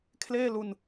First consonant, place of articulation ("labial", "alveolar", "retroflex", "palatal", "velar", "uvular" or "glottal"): velar